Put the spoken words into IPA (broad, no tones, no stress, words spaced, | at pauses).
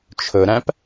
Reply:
t͡ʃʰɵɾæ̃p